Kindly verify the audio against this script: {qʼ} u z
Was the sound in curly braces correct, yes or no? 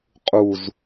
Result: yes